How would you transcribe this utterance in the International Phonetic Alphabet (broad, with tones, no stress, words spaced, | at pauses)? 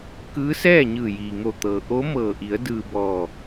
kɯː˧˥sɛː˥˨ɲɯː˧˩ jiː˩ŋo˧˩t̪ɤː˩ ʔo˧˥mɤː˧˩ʔi˩˧ə̯ dɯː˧bɔː˧˩